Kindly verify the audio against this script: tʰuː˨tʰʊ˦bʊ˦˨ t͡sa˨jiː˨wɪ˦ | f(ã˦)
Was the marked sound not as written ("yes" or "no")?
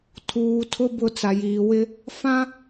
no